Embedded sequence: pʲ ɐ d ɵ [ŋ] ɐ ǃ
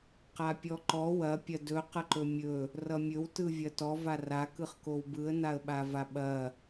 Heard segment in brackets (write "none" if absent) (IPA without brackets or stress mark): q